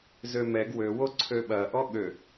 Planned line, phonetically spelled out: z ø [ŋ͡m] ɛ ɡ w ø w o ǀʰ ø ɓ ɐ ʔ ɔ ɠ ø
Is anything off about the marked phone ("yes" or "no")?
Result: yes